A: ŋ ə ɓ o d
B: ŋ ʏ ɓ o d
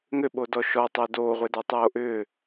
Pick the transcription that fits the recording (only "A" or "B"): B